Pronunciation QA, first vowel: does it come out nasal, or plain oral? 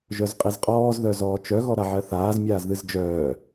oral